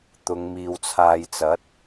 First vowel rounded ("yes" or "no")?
yes